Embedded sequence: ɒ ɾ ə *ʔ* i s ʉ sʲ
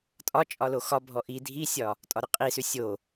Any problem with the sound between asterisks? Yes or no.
yes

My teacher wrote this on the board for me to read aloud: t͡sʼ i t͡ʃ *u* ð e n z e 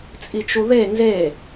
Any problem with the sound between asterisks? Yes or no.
no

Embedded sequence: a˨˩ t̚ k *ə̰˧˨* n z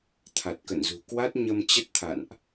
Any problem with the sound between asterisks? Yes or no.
no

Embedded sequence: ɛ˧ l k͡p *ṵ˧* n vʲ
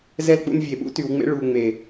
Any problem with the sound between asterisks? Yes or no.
no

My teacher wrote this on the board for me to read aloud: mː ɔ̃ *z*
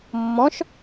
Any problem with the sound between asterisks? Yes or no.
yes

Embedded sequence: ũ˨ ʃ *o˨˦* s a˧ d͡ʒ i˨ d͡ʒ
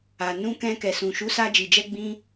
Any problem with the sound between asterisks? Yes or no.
yes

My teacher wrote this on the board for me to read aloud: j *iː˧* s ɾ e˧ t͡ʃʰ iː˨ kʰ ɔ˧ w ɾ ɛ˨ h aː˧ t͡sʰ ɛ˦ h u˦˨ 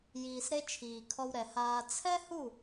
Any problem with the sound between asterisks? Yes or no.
yes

